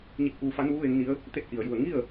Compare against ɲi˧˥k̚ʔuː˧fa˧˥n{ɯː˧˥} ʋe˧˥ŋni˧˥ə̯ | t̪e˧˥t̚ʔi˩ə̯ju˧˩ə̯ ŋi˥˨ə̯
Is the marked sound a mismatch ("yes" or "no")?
yes